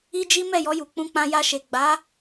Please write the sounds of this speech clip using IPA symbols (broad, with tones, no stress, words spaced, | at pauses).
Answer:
i˦d͡ʒi˦ mɛ˦˨jɔ˧ju˨ k͡pũ˧k͡pã˧ ja˧ʃe˨ ɡ͡ba˨˦